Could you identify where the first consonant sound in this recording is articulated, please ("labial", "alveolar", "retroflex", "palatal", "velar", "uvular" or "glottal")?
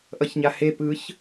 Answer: glottal